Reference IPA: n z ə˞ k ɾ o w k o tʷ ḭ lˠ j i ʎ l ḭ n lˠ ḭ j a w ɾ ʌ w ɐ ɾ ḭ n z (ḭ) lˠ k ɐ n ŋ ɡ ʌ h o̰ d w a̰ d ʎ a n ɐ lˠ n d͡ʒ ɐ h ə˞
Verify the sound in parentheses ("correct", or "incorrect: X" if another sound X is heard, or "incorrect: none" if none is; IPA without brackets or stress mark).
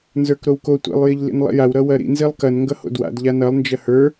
incorrect: i